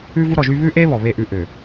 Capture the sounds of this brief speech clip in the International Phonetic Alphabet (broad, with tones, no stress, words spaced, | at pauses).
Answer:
ʉ˦vu˦ɾɔ˨ʒy˦ βʉ˦ʔe˦ βɔ˨βe˦˨ʔʉ˦ ʔø˨